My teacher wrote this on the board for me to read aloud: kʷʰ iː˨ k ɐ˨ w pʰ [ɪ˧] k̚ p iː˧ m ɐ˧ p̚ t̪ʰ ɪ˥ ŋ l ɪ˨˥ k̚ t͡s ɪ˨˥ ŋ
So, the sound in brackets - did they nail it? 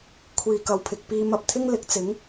no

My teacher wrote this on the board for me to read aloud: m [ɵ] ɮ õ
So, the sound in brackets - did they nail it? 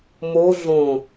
no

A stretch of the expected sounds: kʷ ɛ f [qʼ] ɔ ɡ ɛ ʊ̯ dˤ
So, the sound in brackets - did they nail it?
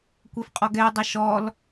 yes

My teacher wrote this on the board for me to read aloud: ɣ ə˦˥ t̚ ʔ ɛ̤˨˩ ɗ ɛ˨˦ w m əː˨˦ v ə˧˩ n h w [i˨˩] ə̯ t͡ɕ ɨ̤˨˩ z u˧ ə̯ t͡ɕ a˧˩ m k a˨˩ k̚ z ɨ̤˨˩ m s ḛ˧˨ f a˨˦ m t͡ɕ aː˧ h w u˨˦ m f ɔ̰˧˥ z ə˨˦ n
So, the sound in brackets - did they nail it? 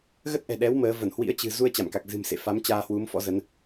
no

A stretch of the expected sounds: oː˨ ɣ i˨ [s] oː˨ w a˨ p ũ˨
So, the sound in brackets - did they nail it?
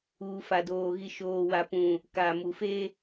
no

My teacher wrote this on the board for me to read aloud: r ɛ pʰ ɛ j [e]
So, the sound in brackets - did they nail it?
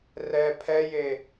yes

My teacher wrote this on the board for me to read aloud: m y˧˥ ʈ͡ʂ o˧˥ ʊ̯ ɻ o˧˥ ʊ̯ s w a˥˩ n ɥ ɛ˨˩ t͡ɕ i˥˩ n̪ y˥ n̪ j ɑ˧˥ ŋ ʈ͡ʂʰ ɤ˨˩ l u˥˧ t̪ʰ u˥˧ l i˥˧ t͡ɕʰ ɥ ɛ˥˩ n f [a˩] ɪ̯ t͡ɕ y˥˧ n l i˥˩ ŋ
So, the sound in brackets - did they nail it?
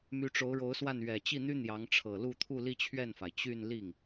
yes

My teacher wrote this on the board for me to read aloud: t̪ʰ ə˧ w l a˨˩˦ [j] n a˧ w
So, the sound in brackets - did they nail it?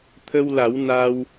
no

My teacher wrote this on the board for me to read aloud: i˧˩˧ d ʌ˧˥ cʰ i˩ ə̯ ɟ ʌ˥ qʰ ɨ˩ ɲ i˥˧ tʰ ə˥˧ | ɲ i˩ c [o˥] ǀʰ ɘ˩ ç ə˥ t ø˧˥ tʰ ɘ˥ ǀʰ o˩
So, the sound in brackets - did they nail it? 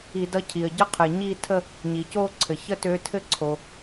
no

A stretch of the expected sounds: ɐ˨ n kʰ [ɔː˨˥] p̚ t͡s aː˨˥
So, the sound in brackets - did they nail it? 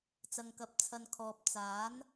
no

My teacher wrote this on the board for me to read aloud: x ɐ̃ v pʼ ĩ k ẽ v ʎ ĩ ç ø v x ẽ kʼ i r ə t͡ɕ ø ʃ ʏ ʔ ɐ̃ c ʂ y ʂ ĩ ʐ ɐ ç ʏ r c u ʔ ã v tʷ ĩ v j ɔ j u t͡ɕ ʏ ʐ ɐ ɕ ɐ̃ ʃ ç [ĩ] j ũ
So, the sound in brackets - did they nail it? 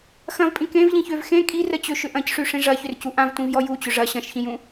yes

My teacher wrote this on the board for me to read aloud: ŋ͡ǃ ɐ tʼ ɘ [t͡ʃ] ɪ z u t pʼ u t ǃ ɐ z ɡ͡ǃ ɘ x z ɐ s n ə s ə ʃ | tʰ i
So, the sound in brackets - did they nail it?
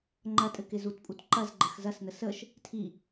no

